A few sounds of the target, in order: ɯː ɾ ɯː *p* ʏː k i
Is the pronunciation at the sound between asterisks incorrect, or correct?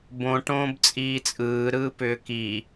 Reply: correct